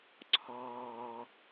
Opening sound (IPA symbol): ǀʰ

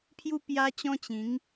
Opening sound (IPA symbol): pʰ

